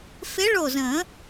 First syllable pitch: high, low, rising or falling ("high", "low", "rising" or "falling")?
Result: rising